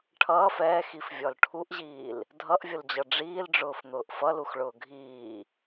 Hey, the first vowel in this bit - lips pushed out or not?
no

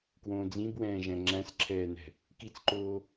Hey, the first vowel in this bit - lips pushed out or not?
yes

